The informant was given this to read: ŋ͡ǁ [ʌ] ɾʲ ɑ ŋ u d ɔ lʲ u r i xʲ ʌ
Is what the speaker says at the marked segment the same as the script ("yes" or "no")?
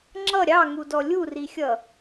yes